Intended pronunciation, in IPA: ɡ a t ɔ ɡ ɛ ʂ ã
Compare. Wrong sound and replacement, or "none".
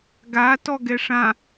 none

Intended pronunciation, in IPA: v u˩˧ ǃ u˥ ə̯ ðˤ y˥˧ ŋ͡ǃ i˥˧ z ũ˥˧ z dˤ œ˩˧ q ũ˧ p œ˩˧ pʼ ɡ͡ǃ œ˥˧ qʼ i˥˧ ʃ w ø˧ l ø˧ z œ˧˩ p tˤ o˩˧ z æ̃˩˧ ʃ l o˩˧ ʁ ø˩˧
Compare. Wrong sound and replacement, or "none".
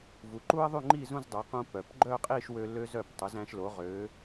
pʼ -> p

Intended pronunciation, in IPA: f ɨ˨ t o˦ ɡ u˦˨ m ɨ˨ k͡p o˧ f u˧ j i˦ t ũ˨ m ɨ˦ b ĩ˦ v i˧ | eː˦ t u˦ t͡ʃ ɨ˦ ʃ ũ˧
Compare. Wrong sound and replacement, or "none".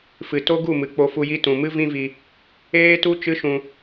b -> v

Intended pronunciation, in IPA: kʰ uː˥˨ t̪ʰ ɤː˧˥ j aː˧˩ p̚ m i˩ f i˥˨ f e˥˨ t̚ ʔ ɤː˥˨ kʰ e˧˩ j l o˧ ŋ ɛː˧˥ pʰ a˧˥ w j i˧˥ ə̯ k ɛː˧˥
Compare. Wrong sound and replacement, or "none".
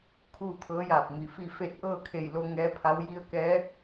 none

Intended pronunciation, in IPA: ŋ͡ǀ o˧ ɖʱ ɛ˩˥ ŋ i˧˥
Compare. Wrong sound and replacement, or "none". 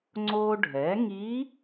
none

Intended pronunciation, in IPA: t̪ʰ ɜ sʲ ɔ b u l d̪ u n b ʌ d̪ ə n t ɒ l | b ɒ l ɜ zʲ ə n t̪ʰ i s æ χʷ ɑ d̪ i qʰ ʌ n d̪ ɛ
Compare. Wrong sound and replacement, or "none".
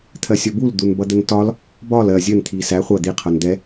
ɑ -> ʌ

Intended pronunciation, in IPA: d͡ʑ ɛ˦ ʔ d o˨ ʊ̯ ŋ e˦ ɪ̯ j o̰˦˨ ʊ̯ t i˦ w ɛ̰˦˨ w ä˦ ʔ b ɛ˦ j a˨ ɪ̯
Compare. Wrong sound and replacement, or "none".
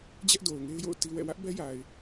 none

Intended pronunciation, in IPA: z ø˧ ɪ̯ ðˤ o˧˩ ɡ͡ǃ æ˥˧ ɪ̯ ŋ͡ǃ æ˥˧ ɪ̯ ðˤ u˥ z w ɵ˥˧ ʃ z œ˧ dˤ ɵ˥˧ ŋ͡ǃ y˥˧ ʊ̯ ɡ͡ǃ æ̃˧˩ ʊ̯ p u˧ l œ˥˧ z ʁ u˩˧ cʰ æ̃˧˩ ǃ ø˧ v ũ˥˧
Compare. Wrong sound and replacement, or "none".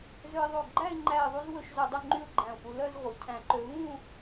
none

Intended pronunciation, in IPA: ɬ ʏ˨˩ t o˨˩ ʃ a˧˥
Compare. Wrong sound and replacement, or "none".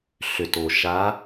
none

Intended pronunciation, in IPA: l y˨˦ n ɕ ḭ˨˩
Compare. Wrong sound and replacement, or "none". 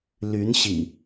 none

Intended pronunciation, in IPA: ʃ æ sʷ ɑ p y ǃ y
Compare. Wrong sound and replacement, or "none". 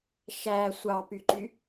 none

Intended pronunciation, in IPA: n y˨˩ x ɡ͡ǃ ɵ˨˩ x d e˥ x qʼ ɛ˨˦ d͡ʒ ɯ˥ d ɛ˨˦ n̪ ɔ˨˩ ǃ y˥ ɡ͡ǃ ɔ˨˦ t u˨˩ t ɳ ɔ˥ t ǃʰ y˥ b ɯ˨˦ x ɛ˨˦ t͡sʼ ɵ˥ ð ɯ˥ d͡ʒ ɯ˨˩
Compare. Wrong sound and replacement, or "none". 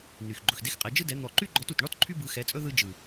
none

